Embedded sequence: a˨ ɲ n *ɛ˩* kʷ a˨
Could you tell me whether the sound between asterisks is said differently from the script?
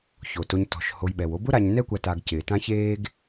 yes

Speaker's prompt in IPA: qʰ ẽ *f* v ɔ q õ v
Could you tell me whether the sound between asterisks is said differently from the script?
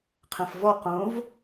no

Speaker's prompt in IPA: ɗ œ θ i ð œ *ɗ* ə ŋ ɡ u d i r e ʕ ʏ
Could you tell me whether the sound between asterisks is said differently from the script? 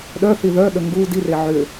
no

